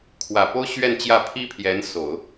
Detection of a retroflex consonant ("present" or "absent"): absent